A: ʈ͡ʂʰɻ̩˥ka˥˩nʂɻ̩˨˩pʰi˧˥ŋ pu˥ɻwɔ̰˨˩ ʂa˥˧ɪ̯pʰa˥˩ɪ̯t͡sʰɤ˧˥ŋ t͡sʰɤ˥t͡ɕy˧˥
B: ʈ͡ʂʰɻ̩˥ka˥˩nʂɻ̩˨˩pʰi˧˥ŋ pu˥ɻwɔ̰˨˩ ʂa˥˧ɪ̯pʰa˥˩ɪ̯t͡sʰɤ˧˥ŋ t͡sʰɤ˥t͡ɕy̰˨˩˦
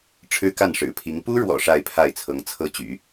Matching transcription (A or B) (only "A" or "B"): B